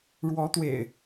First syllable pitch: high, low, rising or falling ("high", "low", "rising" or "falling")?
rising